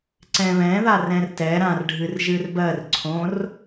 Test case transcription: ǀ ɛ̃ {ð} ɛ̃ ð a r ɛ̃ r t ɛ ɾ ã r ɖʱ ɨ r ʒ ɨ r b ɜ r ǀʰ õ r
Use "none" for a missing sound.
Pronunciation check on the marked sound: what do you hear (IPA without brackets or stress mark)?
β